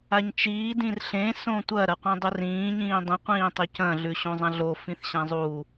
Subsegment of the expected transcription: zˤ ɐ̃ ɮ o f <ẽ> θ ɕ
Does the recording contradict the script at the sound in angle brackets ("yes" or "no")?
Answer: yes